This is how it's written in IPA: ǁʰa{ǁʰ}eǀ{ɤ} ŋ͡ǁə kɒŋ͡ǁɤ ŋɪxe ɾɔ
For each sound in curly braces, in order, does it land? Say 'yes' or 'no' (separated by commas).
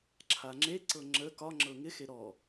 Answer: no, yes